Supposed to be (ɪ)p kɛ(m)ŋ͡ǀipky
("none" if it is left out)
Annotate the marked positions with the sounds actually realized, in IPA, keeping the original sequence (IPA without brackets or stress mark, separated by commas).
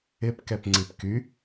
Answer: ɪ, p